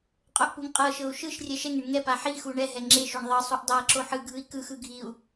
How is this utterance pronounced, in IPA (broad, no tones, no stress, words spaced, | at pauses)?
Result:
qʼoʔpuŋqʼɤʃɤu̯ ʃɯʃ rʲɛʃɛŋeɳ ŋɛ paħixu ɳɛɦɛ ŋ͡ǁeʃoɳ ðˤɤsˤuʔ dˤaǁo ħɯɡʱɯi̯ kɯxɯ ɡʱiu̯